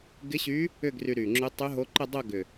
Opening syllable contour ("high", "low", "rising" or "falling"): rising